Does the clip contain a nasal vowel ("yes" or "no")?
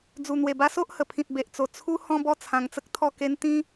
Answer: yes